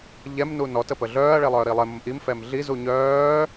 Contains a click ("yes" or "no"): no